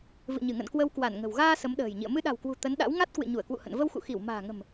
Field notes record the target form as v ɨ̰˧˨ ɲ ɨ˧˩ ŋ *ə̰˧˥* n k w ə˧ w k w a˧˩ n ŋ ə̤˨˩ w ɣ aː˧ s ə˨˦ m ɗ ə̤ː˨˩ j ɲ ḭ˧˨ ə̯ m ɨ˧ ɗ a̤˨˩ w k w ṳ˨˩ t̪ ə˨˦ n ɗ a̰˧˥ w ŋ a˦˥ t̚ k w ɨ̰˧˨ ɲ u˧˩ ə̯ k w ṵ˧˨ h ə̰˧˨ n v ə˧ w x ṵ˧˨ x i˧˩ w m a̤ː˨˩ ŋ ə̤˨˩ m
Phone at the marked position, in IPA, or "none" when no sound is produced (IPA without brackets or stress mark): ə̰˧˨